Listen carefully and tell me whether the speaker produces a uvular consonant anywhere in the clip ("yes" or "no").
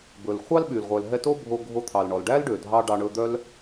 yes